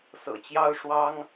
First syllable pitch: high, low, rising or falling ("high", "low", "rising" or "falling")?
low